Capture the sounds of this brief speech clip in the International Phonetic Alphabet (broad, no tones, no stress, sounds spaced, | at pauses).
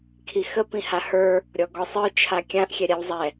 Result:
kʰ i x ə p ĩ h a h ə˞ | ɾʲ ɔ ɡ ɔ sˤ ə˞ t͡ʃʰ a kʲ ã ʔ xʲ ɛ ɾʲ a w zˤ ɛ